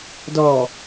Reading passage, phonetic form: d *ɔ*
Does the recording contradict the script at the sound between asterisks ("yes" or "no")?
no